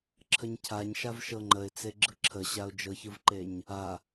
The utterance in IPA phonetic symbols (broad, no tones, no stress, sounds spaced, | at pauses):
ǁʰ ə ɲ cʰ a ɲ ʃ a v ʃ ɤ ŋ͡ǃ ə ɪ̯ t͡s e ɡ͡ǁ ɯ ǁʰ ə ɕ a ʊ̯ d͡ʒ ɤ ç ɯ v ǃ e ɲ | a